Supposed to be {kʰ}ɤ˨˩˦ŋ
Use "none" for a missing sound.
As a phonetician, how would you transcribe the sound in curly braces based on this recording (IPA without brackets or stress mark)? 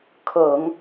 kʰ